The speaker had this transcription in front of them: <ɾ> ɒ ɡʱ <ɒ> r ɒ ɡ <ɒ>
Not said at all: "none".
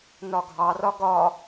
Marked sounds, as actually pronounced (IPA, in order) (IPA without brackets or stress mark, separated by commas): n, ɑ, ɒ